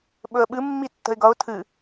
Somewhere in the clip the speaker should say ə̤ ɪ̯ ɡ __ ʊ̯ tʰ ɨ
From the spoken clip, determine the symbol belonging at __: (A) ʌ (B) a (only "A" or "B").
A